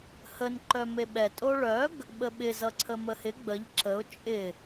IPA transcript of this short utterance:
h ə n ǃ œ m e ɓ ɛ tʼ o ɭ œ ɡ | ɓ ə ɓ ɪ z ʌ ǀʰ ə m ə h ɪ ɡ͡b ə ʎ ǁ ə ʊ̯ t͡ʃʼ ɪ

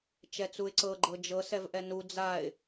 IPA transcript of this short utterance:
t͡ʃ ɛ t͡s u ɪ̯ ǀ ɤ ɡ͡ǃ ɤ d͡ʒ ɤ s ɛ v ʔ ɛ n u d͡z a ɪ̯

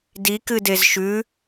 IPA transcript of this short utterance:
d i k ɨ d e z ʃ ʉ

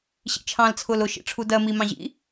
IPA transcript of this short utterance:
ɕ ḭ t͡ʃʰ ɑ̃ l t͡sʰ ʊː l ʊ ʃ ḭ ʈ͡ʂʰ u d ɜ m i m ɑ̃ ʑ ḭ

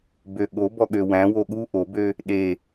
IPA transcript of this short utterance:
b ø ɠ o b ɔ ɠ ø w æ̃ w o ɠ u ʔ o b ø | ɗ e

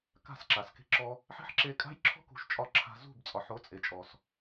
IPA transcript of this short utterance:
k a̤˦˨ s ǁ a˨ s k e̤˦ ǁ ɔ˦ | ħ e̤˦ ħ ǁ e˧ kʼ a̤˦ j ǁʰ ɔ̤˦ k ṳ˨˦ ʃ t͡ʃʼ ɒ˧ ǁʰ a̤˧ z ṳ˦˨ b t͡sʼ ɒ˨ ħ o˨˦ t͡sʼ e˨ t͡ʃʼ ɔ˨ s

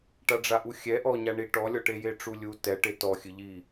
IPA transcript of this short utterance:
ʈ a ɖ͡ʐ a ʔ u xʲ ɛ ʔ ɔ ɲ a ɳ i ʈ ɔ lʲ ɔ ʈ e j e ʈ͡ʂ u lʲ u t ɛ ʈ e t ɔ xʲ ɨ ʎ i

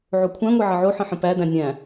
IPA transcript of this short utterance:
ʕ o kʷʰ æ̃ ŋʷ e ʕ ʌ ʕ o ħ ə̃ ħ ə̃ p æ d æ̃ nʲ æ̃

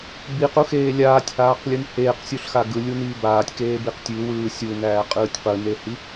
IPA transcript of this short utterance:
b i q u x eː lʲ aː tʲ h aː q lʲ ɯ n h eː q sʲ u ɬ x a ɡ ɯ lʲ u n iː b aː tʲ k eː b i q tʲ ʉ w ɯː sʲ u n æː qʼ ɯː tʲ q ɯ n e h i

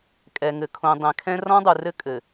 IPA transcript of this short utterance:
kʼ ɛ˨ ŋ ɘ˨ kʰ õ˨ dˤ ɛ̃˨ kʰ ɛ̃˦ r ɔ̃˦ dˤ u˨ r ɘ˦ kʼ ɘ˨

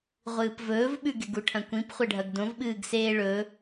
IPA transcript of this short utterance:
ʁʷ ɨː p v ɵː v ɓ ʉ ɡ e ɡ u ʈʰ ɐ̃ kʷ ĩ p χʷ ɐ ɖʱ ɐ ɡ d õ v ɓ ɨː ɡ s eː ɭ ɵ

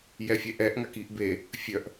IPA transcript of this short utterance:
j ɛ fʲ ɛ ʔ ɛ ʔ ŋ a k i ʔ b e | fʲ œ ʔ

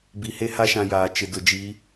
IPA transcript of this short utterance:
b i˨ h e˦ h a˦ ʃ ã˨ j aː˨ t͡ʃ ɪ˨ d ʊ˨ d͡ʒ i˨˦

